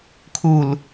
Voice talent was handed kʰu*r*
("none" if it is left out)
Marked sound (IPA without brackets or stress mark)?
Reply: l